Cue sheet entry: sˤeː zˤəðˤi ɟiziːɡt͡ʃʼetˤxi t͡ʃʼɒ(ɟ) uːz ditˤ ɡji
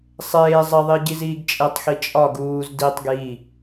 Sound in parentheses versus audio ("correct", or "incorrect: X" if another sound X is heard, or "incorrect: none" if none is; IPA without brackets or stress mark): incorrect: ɡ